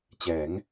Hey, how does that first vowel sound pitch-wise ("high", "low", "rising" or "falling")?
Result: rising